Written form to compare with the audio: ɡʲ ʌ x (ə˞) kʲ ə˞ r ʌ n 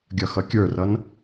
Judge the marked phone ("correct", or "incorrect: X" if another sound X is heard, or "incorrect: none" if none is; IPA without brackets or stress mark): incorrect: ʌ